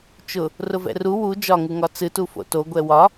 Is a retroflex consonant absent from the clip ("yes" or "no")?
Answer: yes